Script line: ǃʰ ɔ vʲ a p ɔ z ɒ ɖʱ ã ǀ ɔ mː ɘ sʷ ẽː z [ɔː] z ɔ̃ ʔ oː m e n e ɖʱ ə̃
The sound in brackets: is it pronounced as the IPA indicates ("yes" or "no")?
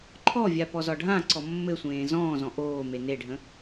no